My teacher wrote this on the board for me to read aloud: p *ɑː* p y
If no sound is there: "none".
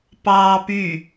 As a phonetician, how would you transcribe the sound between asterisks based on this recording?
ɑː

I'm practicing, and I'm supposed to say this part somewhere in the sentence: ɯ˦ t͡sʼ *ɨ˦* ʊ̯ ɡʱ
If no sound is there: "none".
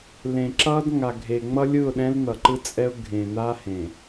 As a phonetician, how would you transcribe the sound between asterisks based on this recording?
ɛ˦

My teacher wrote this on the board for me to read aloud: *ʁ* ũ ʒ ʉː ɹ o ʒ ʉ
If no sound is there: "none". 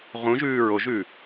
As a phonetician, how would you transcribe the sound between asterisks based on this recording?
ʁ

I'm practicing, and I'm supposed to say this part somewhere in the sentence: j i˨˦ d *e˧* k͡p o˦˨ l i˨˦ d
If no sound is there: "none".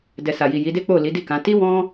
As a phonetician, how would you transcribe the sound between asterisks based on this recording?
e˦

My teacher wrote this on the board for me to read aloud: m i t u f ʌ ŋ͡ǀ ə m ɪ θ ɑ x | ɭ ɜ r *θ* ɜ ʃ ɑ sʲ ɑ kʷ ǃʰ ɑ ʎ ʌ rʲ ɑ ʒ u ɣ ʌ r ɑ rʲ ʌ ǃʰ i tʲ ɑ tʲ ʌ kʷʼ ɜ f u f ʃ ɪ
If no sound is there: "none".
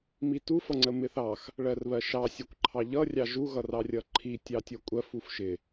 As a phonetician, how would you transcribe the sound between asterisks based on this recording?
β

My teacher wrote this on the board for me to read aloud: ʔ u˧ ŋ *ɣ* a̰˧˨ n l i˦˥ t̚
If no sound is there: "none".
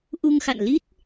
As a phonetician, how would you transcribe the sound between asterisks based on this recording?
x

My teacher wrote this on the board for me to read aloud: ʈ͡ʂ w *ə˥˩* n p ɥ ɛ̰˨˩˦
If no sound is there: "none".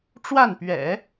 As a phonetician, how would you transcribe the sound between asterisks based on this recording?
a˥˩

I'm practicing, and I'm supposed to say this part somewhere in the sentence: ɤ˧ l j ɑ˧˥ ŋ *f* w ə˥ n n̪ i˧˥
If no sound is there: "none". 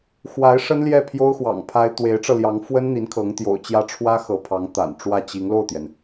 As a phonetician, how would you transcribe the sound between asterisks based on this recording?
f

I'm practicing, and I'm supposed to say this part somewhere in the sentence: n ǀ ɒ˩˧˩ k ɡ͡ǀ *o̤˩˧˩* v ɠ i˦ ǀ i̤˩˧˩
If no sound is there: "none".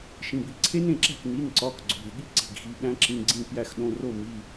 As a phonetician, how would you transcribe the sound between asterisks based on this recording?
o̤˩˧˩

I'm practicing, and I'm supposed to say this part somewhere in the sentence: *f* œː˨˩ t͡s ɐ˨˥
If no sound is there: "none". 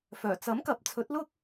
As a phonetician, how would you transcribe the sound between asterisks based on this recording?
f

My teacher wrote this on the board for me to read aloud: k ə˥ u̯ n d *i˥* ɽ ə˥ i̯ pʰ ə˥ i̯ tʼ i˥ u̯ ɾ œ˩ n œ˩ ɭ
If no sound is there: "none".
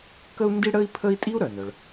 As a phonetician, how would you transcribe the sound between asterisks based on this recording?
i˥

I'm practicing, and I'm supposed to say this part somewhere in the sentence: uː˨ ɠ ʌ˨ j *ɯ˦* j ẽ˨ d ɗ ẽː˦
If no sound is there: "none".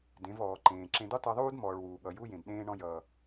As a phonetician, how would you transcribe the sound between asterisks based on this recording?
u˦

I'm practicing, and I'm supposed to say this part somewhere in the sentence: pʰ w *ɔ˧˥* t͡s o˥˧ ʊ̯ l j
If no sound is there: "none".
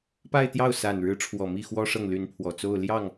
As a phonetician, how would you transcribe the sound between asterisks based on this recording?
ɔ˨˩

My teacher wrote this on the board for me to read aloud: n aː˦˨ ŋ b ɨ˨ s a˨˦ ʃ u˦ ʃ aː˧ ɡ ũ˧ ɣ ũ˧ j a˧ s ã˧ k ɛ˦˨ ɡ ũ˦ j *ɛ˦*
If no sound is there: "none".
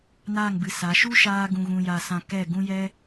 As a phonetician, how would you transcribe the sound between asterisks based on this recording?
ɛ˦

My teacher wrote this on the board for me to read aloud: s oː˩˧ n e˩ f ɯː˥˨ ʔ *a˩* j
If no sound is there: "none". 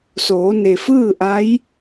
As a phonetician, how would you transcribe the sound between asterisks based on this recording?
a˧˥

